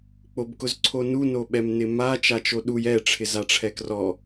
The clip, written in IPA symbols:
k͡p o b k ʊ z ǀʰ o n u n o ɓ ɛ m n ɪ m a t͡ʃ a t͡ʃ o ɗ u j ɛ ʈ͡ʂʰ ɪ z a ʈ͡ʂʰ ɛ k r ɔ

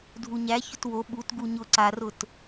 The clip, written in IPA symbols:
dʱ u ɲ æ ç ʊ t w o ɓ u t ɡ u ɲ ʊ ǀ a r ʊ t

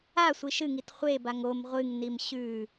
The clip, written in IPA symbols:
a sʷ i ʃ ɨ ŋ i t χʷ e b a ŋ o m ʁʷ ɨ ŋ n i m ɕ ʉ

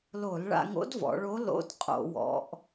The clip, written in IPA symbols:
l o˧˩˧ l ɭ a̰˧ ŋ o̰˧˥ d v ɔ̰˩˧ ɭ o˧˥ l o̰˧˥ d qʼ o̰˧˩˧ w ɔ̰˩˧ ʔ

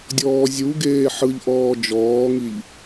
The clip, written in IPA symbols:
dʲ ɔː zʲ u ɡ eː ħ ɯ ʎ ʔ ɔː d͡ʒ ɔː ŋ i ʎ

